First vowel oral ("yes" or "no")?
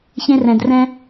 no